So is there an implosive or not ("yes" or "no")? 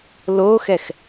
no